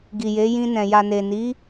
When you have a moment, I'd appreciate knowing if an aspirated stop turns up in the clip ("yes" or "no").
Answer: no